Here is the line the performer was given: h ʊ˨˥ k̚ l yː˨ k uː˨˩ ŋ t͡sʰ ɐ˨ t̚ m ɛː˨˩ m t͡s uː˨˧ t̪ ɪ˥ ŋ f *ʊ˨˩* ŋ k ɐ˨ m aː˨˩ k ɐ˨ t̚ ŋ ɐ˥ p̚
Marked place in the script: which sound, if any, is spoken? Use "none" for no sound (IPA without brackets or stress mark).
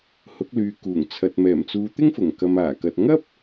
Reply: ʊ˨˩